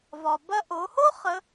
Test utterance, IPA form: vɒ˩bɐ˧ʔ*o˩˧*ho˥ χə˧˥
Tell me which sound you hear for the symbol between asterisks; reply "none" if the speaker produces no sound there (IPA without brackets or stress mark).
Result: o˩˧